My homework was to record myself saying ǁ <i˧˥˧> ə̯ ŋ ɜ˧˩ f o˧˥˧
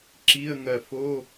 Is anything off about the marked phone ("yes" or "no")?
no